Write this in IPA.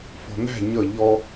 fɔ̤n̪æ̤ ɲʌ ʎɔ

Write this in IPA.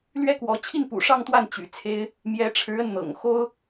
lɥɛ˥kwɔ˧˥ t͡ɕʰi˥˩npṵ˨˩ʂɑ˥˧ŋt̪wa˥˩n t͡ɕy̰˨˩t͡sʰe˥ɪ̯ | mjɛ˧˥ʈ͡ʂʰɻ̩˧˥ə˧n n̪ɤ̰˨˩ŋ xo˥ʊ̯

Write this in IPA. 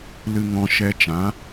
lɨ˨ŋɔ̃˨ ʃɛ˧t͡ʃã˨˦

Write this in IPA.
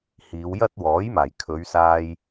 hiː˨˧wjɐ˥t̚wɔː˨˥jmaː˨˩j kʰɵ˨˧ɥsaː˧j

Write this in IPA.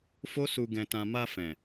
fo˦su˧ ɡɛ̃˧tã˧ ma˧fɛ̃˨

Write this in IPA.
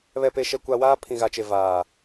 βɛ˨pe˨ʃɛ˨kʷa˨ waː˦pʰĩ˨ɣa˨t͡ʃe˨ vaː˨

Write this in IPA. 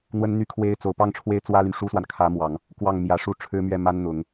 n̪wə˥nn̪y˥kʰwe˥ɪ̯ t͡so˨˩ʊ̯pɑ˥˩ŋ ʈ͡ʂʰwe˥ɪ̯t͡swä˥ly˨n ʂu˥swa˨n kʰä˧˥ mwɑ˨˩˦ŋ | kwɑ˥˩ŋmjä˧˥ ʂu˥˩ʈ͡ʂʰɻ̩˥mɥɛ˥˩ma˥n n̪ʊ˨˩˦ŋ

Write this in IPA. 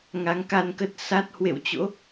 ŋa˨˦ŋka˧nkə˦˥t̚ sa˦˥t̚ hwḛ˧˨wt͡ɕo̰˧˥

